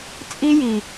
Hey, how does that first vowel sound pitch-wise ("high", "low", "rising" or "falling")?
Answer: high